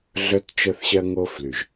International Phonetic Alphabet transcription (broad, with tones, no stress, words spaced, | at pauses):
ɮœ˦t t͡ʃœ˦θɕɜ˦ŋo˦ fly˨ʒ